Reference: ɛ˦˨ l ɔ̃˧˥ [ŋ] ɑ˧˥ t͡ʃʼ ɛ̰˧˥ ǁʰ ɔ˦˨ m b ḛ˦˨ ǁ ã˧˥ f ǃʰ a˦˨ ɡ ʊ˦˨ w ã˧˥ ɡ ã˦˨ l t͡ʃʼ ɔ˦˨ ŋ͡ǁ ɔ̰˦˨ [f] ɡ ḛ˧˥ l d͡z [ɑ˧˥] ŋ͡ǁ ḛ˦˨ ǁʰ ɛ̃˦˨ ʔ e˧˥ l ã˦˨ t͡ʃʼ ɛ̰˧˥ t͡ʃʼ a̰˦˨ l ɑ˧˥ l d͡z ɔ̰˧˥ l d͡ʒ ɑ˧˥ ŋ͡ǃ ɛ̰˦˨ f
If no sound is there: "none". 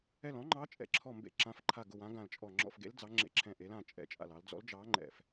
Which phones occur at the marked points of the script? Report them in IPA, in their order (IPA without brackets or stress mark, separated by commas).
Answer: ŋ͡ǃ, f, ɑ˧˥